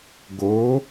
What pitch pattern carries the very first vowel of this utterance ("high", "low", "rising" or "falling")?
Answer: rising